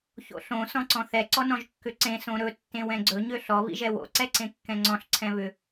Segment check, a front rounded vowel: present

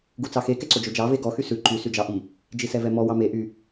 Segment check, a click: present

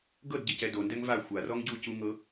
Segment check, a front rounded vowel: absent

